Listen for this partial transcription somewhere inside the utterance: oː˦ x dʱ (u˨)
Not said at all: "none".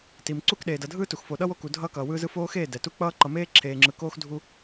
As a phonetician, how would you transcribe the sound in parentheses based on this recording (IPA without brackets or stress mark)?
u˦